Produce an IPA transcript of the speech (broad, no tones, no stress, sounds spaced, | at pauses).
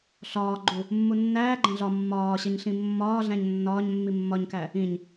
ɬ ɒː ɡ͡ǃ u | mː u nː æː ɡ͡ǃ æ̃ ɮ ɒ mː ɒː ɕ e ɲ ɬ ĩ mː ɒː ɮ æ̃ ɲ nː ɒː ɲ mː i mː ɒ ɲ k æ | ĩ ɲ